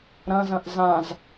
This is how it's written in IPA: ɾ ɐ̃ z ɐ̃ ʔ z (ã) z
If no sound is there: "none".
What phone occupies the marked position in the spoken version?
ã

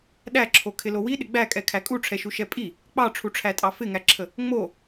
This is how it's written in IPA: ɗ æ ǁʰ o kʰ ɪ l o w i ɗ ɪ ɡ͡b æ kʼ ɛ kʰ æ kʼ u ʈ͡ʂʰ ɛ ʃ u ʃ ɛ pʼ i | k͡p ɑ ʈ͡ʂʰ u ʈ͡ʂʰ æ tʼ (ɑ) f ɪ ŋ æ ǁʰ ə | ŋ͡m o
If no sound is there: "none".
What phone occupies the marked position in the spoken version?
ɑ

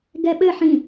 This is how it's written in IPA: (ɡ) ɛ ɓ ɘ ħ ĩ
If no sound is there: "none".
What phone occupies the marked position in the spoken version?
ɡ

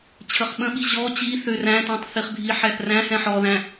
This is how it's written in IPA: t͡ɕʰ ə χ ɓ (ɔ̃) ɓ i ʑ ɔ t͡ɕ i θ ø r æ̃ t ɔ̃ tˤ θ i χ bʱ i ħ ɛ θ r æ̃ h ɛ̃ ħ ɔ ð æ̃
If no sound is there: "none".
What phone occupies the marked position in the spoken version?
ə̃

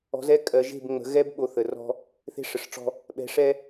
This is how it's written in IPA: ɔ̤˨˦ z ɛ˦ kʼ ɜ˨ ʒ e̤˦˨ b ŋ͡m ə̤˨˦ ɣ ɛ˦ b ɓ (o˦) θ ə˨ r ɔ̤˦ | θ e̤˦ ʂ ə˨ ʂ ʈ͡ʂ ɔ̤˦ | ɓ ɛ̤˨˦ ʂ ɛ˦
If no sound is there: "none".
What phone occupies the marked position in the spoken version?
o˨˦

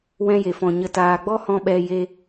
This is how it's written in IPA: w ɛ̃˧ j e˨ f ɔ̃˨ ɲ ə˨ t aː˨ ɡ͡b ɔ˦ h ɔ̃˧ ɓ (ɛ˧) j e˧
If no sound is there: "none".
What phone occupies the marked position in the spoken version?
ɛ˧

